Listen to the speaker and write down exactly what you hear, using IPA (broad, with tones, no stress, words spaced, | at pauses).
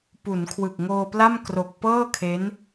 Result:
pu˩˦nkʰwɯ˨˩k̚ŋoː˧pla˥˩m kro˨˩k̚ pɤː˥˩kʰe˦˥n